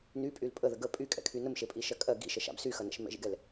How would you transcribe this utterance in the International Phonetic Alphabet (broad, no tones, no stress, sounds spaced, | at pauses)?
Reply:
n y pʼ y l pʼ ə ð ə ɡ ə pʼ y kʼ ɛ̰ kʰ y n ə m ʃ e pʼ i ʃ ɜ kʼ ɜ ɡ ḭ ʃ ə ʃ a̰ b s y x ɐ n ɛ̰ ʃ m ɛ̰ ʒ ḭ ɡ ɛ l